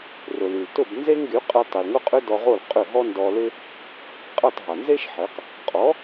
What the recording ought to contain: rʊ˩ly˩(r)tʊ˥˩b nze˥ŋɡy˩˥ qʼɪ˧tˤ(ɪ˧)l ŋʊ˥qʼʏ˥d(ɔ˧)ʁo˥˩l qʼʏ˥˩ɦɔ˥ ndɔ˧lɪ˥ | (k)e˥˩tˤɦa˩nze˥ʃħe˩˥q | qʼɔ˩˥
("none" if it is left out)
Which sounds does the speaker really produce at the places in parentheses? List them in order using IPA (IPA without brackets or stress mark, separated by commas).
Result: l, ɪ˩, ɔ˧, qʼ